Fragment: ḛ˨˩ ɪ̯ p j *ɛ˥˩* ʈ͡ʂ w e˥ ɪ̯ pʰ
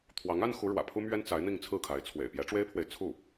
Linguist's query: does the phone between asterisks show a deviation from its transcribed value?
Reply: yes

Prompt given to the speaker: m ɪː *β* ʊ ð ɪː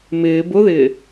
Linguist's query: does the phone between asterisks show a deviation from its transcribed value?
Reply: yes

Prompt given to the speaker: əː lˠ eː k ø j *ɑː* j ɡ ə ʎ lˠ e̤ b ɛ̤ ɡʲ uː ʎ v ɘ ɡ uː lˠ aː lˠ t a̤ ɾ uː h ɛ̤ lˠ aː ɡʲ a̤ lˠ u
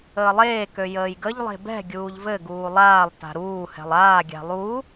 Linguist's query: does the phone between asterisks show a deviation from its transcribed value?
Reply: yes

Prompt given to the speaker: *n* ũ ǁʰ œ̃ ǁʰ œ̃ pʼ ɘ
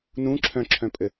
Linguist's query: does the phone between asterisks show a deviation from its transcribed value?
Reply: no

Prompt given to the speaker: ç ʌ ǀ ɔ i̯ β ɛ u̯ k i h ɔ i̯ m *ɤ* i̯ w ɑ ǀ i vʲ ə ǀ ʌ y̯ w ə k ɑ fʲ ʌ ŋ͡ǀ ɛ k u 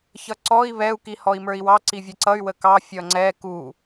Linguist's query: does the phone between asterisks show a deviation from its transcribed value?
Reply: yes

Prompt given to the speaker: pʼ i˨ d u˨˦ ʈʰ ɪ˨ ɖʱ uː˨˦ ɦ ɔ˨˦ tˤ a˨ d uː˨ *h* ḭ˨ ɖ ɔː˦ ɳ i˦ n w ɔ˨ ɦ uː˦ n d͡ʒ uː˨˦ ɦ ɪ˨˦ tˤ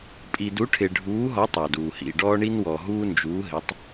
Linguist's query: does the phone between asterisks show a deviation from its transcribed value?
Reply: no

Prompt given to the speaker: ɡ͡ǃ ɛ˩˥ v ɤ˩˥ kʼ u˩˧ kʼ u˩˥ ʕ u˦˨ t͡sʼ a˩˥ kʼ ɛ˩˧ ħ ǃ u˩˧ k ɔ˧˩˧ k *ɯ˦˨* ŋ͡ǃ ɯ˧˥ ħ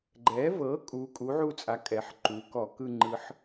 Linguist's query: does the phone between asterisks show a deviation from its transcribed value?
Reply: no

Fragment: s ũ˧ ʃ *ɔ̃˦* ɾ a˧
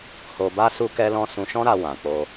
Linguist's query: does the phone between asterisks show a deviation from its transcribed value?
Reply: no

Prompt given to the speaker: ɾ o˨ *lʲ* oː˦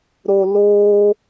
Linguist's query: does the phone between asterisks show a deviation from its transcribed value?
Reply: yes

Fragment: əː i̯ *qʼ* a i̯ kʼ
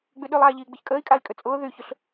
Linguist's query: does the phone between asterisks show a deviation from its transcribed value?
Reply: yes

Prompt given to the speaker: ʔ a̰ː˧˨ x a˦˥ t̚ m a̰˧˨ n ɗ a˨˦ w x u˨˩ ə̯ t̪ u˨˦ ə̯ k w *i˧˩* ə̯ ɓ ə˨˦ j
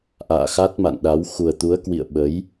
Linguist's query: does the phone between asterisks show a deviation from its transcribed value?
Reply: yes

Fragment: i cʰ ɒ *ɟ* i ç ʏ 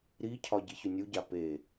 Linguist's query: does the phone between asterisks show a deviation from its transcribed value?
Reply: no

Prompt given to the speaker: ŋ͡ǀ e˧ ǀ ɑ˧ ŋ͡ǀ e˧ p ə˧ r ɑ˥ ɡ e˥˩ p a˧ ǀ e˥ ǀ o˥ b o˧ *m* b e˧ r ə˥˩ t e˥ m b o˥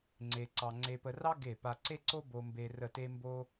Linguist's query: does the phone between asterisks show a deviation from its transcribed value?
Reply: no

